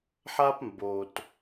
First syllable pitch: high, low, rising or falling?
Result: high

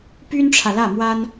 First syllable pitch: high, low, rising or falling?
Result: high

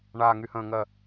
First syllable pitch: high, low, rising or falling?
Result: low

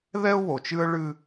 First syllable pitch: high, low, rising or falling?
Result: high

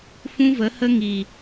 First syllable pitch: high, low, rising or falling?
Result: high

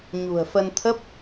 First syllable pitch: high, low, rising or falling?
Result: low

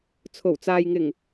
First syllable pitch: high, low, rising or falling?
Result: low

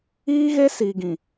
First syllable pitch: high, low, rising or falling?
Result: high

